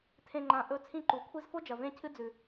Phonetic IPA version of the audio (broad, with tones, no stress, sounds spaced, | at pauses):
tʰ ẽ˧ ŋ͡ǃ ã˨˦ ʔ ɵ˨˦ t͡sʰ ĩ˧ ǃ u˨ kʷʰ i˧ z f o˦ d͡ʒ ɐ˨ v ẽ˦ cʰ ɨ˦ d͡z ʉ˨